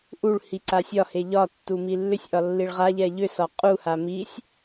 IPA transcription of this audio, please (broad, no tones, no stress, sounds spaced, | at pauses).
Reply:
ʔ u ɭ h i ǀ a sʲ ɒ h e ʎ ɒ tː u m i lː ʏ sʲ ʔ ɒ lː i ɭ ʁ a ʎ ɛ ʎ ʏ s ɒ qʼ u h a m i sʲ